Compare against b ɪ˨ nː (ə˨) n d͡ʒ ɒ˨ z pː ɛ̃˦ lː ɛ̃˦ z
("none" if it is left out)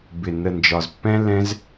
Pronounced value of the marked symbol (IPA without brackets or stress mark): ə˨